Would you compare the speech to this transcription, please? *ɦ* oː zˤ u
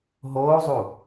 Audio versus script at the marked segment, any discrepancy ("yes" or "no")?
no